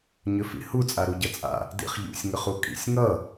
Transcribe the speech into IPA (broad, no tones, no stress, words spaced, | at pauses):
ɲʏfḭhu t͡sʼaɾuɟʌt͡sʼa̰ | dḭχʎṵsʲ ŋʏχukʼḭsʲ ŋʌ